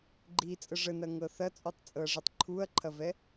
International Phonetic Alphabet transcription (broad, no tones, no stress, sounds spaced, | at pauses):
ɡ͡ǃ i t͡sʼ ə ʐ ə n ɐ ŋ ɤ θ ɐ t͡sʼ u tˤ t͡sʼ ɤ ɐ̯ ʐ i tˤ ǃʰ u ɐ̯ ǃʰ ɐ v ɛ